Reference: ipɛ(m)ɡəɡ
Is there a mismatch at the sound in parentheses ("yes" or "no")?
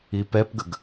yes